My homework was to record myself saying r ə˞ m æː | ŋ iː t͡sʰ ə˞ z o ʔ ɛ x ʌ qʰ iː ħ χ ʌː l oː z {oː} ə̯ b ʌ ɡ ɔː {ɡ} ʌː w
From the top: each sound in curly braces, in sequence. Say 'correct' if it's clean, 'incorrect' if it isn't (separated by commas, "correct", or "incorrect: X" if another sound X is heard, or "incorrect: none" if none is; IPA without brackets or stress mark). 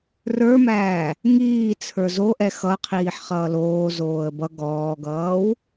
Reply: correct, correct